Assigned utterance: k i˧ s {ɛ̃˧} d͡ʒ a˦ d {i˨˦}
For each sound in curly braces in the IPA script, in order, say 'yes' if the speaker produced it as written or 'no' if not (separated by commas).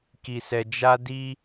no, no